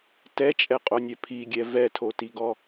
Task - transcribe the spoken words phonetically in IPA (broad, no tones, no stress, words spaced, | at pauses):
tɛt͡ʃʼɛqʼonʲɛ pʰiɡʲɛ vɛtʰotiɡɔ